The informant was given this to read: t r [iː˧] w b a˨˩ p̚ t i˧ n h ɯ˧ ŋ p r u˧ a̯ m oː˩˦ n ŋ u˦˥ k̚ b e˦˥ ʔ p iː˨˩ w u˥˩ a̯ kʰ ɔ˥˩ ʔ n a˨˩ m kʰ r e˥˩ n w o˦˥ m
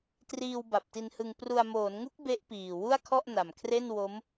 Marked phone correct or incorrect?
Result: correct